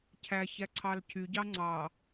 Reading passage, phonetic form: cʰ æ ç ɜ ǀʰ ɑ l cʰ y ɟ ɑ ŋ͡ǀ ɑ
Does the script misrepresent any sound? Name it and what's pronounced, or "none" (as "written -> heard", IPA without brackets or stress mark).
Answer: ɜ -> æ